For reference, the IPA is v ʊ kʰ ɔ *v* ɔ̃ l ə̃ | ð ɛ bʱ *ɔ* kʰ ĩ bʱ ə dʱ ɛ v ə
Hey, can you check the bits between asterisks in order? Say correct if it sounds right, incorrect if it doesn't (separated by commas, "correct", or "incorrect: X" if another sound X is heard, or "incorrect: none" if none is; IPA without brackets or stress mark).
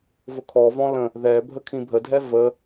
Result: correct, incorrect: ə